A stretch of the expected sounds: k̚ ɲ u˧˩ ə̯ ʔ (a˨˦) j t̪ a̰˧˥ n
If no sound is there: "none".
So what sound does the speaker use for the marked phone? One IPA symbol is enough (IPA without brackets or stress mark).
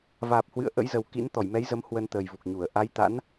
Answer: a˨˦